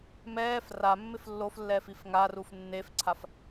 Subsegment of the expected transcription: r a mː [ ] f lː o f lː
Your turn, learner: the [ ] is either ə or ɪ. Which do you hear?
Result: ɪ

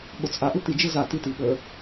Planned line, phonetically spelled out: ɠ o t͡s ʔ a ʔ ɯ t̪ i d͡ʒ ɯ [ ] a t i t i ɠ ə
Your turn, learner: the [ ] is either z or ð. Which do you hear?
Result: z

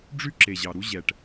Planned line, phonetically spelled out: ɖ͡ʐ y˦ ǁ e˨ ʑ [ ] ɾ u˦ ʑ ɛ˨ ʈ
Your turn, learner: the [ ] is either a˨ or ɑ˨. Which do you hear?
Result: ɑ˨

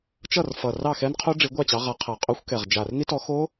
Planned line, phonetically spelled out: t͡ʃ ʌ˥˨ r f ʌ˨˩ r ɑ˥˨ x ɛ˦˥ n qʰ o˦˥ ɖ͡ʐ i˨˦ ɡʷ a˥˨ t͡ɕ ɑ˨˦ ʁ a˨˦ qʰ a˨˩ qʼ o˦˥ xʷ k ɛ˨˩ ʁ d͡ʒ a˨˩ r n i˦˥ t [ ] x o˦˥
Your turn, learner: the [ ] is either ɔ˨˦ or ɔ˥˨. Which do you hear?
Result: ɔ˨˦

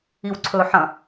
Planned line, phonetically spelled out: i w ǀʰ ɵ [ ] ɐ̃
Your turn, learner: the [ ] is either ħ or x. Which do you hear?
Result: ħ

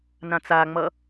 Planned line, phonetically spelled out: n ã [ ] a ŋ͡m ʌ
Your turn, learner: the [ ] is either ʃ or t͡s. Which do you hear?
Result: t͡s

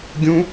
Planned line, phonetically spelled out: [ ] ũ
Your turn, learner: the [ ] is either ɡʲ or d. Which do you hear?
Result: ɡʲ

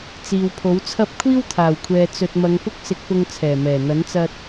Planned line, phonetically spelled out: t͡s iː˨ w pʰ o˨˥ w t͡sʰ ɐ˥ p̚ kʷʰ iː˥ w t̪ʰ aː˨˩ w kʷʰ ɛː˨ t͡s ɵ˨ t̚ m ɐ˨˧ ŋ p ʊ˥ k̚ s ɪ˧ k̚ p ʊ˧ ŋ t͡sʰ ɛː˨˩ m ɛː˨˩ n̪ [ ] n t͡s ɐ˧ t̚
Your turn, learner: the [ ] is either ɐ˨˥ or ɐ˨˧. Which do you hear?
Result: ɐ˨˥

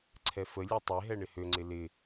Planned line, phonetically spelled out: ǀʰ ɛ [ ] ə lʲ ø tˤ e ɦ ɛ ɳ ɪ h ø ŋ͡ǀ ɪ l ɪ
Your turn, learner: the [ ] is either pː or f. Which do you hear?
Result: f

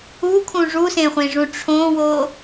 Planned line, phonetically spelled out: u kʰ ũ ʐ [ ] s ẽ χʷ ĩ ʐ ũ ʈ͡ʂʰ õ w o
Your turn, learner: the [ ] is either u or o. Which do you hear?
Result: u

